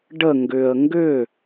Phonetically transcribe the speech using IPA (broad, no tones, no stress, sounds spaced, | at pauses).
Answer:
ɖ ə ŋ ɡ ʏ ə̯ ŋ ɡ ʏ